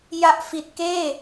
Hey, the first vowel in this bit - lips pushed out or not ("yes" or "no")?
no